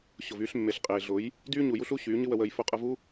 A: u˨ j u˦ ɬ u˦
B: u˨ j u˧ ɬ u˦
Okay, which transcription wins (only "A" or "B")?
A